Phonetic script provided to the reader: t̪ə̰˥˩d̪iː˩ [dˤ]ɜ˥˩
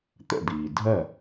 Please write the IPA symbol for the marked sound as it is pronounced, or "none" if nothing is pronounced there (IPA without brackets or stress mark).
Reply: dʱ